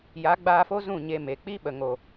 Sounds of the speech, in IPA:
ja˨˦ɡ͡baː˧fo˦ zũ˦˨ ɲe˧me˨ k͡pi˦ɓə˨ŋo˨

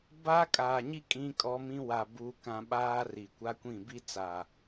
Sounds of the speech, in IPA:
ba˦kʼaː˨ɲi˦ kʼĩ˦kʼɔ˦mĩ˦ wa˨ buː˦kã˦ ɓaː˦ ri˨kʷa˦kʷĩ˦˨ bi˦t͡sa˨

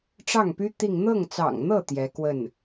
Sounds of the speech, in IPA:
ʈ͡ʂɑ˥˩ŋpy˥ t̪i˥˧ŋ n̪ɤ˥˩ŋt͡sɑ̰˨˩ŋn̪ɤ˥˩ t̪jɛ˧˥kwə˥˩n

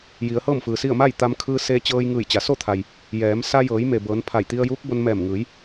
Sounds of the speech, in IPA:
ji˩˧ə̯hɤː˥˨mfɯː˩si˥˨ə̯ ma˥˨j t̪a˧mkʰɯː˧ seː˧t͡ɕɤː˧jŋɯː˧˩j t͡ɕa˩so˥˨t̪ʰa˩j | jɛː˩˧m sa˧jɤː˩˧jme˩ bɤː˩˧n pʰa˧˩jt̪i˧ə̯juː˧˥k̚bo˧n mɛː˧˩mŋɯː˩˧j

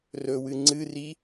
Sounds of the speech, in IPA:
rɵwɨ ŋ͡ǀɨri

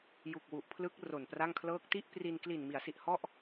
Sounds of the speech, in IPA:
ju˨˩k̚wu˨˩ʔpʰlɯ˦˥k̚ ro˨˩npra˥˩ŋkʰlɤː˥˩k̚ ti˥˩ʔpri˧n kli˨˩nmi˩˦a̯si˨˩ʔ hɔ˥˩ʔ

